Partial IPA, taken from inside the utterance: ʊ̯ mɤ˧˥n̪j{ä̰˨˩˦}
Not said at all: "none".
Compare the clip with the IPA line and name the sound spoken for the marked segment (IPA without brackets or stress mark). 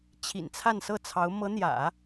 ä̰˨˩˦